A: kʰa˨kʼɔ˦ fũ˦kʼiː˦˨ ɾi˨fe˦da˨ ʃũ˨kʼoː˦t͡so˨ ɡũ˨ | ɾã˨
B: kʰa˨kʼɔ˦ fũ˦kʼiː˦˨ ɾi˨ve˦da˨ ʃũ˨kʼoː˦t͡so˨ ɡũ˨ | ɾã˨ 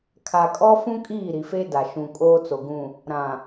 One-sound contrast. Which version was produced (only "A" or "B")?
A